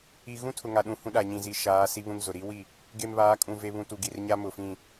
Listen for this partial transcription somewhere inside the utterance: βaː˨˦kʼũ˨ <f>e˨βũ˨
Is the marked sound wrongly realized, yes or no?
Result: yes